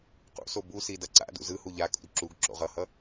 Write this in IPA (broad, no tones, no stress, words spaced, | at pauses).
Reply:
qṵso busi dʌǀa̰dṵ zɯhu ʎakʼṵd ǁuɡǁo̰ʁ ʌhʌ